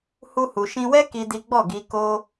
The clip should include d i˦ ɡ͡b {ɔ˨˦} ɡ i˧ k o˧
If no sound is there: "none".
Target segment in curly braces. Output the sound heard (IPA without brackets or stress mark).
ɔ˦˨